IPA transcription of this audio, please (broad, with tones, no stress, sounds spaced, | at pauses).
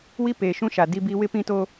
w i˦ p eː˨ ʃ ũ˦ ʃ a˨ d i˦ b i˦ w ɪ˦ p ĩ˦ t o˦